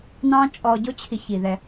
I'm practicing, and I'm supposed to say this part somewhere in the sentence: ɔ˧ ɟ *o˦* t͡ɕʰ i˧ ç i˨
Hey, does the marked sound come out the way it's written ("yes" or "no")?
yes